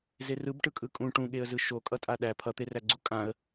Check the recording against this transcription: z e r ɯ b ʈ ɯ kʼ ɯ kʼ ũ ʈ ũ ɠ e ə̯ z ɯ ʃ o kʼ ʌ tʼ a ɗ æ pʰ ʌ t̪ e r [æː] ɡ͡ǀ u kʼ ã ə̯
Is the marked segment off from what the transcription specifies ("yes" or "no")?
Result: yes